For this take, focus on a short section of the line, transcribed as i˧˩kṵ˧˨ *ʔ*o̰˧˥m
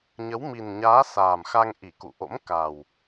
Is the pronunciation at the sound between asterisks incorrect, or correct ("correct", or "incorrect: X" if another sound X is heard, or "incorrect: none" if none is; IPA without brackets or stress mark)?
correct